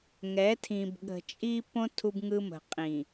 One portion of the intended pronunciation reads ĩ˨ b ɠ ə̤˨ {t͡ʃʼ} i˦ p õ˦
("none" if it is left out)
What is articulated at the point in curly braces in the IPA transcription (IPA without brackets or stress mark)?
t͡ʃʼ